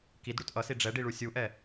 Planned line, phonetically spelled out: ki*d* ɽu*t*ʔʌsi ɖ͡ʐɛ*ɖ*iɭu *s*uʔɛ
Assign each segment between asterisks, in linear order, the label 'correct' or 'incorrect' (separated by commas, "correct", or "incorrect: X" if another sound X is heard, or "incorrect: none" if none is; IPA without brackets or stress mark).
correct, correct, correct, incorrect: sʲ